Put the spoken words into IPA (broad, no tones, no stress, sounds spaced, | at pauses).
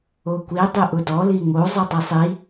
o kʷ i dˤ i ʔ ʊ d ɔ l i ŋ o zˤ ɨ dˤ i sˤ i